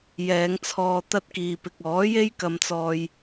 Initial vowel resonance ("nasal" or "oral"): oral